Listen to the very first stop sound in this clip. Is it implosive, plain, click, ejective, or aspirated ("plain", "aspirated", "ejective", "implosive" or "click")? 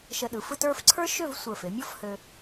implosive